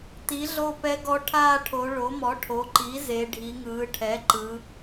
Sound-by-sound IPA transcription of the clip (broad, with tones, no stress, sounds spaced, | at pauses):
t i˩˥ ɮ o˦˨ p ɛ˧˥ ɡ ɔ˧˥ ʈʰ aː˦˨ ʈʰ o˩˧ ɭ o˩˥ m ɔ˩˥ ʈʰ o˩˥ ǃ i˩˥ z e˩˧ ɖʱ i˩˧ ŋ ɯː˩˧ ʈʰ ɛ˩˥ ǃ ɯ˩˧